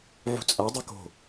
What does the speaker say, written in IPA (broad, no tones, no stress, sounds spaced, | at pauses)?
ʕ ṳ t͡sʼ a dˤ ɯ k o̤